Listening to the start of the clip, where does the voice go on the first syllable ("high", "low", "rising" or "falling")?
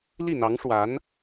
falling